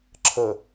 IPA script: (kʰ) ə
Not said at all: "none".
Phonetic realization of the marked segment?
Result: ǁʰ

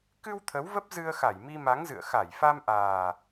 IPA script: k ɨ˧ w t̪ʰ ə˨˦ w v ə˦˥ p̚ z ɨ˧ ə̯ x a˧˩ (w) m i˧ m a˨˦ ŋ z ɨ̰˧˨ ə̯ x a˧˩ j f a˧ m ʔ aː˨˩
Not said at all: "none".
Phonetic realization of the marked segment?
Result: j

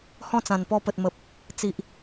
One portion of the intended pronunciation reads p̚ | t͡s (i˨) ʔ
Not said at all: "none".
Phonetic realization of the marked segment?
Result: i˨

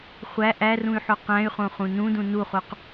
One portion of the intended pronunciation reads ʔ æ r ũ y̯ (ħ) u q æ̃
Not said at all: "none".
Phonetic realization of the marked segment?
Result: ħ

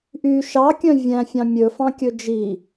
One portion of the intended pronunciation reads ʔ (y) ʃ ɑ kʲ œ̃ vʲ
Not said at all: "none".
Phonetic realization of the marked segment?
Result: y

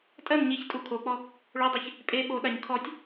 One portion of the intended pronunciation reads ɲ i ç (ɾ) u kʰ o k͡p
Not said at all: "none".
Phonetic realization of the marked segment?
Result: tʼ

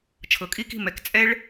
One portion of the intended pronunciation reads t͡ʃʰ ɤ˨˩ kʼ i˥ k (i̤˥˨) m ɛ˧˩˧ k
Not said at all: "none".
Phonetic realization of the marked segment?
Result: i̤˥˨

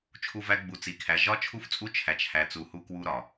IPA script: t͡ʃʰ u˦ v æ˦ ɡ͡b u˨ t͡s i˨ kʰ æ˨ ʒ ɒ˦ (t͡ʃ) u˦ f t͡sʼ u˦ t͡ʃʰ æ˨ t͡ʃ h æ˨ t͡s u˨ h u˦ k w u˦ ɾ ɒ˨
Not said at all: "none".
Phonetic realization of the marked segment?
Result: t͡ʃʰ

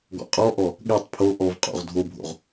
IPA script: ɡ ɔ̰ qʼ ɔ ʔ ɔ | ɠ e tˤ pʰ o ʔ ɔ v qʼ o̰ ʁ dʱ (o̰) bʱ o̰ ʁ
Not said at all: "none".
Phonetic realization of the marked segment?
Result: o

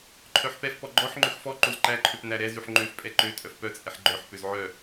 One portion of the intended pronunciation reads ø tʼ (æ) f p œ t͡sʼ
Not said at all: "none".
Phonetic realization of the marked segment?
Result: œ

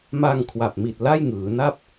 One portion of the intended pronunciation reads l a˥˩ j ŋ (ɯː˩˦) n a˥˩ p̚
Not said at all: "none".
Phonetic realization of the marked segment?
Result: ɯː˩˦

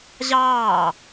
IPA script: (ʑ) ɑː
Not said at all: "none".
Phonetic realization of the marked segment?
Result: ʑ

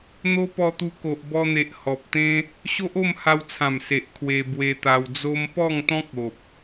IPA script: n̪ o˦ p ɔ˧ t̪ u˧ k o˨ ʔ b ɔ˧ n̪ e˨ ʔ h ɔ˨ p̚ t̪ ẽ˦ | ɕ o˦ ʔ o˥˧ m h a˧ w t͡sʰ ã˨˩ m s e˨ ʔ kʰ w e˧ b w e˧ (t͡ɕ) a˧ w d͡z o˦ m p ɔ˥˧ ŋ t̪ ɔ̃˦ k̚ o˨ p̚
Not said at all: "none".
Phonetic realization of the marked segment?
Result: t̪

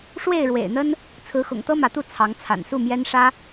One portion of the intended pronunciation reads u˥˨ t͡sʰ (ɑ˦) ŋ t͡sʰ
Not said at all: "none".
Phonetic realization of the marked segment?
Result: ɑ˨˦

